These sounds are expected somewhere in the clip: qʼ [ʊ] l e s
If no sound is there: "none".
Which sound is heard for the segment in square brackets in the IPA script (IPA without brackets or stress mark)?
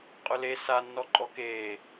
ʊ